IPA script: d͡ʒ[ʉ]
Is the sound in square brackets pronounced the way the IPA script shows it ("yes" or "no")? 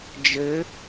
no